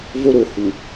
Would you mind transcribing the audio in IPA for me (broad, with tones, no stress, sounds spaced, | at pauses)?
v o˦ ɾ o˨ h u˨